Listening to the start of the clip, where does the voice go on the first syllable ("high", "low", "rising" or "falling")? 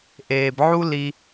low